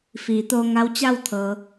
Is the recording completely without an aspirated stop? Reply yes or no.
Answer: no